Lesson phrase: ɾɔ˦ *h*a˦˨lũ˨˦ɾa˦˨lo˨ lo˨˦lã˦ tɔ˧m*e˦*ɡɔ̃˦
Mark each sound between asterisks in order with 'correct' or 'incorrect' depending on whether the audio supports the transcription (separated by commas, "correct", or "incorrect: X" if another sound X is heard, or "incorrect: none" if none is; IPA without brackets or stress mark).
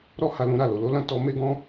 correct, correct